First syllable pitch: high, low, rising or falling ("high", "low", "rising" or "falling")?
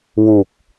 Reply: low